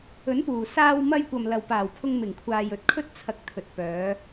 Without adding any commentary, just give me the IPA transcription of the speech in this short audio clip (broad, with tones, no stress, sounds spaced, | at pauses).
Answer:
ɵ˨˥ n p uː˨˩ s aː˧ w m ɐ˧ j kʷ ɐ˨ m l ɐ˨ w p aː˨˩ w pʰ ʊ˧ ŋ m ɪ˨˩ ŋ kʷʰ aː˨ j ɵ˧ t̚ kʰ ɵ˥ t̚ t͡sʰ ɐ˨ k̚ t̪ʰ ɵ˨ t̚ p œː˨˧